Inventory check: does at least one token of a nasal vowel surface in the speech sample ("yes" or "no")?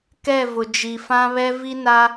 yes